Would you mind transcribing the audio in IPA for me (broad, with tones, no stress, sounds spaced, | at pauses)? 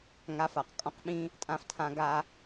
ŋ a˧ f a˨ q kʼ ɔ̃˧ q ɓ ĩ˧ | tʼ ã˦ f tʰ ã˦ ɡ a˦